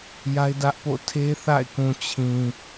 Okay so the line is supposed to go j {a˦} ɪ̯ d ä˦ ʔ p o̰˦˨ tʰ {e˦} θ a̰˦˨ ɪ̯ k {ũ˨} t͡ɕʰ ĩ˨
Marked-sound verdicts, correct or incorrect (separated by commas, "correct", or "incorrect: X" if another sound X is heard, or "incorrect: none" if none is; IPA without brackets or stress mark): correct, correct, correct